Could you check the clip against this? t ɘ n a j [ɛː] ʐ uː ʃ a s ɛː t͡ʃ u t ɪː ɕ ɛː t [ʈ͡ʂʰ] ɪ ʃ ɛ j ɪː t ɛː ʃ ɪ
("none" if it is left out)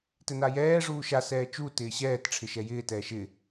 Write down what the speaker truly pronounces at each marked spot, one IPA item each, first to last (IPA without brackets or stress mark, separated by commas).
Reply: ɛː, ʈ͡ʂʰ